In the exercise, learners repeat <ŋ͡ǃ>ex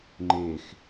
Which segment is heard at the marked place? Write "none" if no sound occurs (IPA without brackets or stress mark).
ŋ͡ǃ